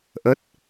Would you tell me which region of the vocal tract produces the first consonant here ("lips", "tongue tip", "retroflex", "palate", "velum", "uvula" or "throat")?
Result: throat